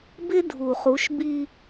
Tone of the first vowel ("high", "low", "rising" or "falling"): high